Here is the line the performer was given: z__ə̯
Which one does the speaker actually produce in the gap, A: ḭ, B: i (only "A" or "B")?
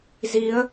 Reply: B